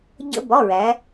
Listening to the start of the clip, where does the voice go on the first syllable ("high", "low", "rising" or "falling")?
high